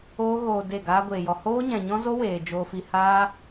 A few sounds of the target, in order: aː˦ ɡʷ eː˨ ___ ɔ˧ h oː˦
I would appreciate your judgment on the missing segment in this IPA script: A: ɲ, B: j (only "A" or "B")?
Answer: B